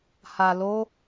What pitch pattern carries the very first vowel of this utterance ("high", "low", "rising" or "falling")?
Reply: low